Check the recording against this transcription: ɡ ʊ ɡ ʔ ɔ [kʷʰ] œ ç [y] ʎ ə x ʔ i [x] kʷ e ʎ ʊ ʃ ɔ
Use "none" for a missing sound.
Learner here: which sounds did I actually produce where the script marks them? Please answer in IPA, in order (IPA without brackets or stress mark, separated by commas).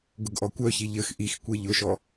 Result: kʷ, i, x